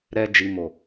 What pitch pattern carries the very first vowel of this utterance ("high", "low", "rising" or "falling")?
low